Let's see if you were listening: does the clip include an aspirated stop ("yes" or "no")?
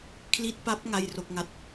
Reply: yes